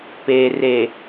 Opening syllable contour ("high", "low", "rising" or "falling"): low